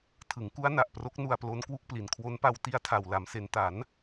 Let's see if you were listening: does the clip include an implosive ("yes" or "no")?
no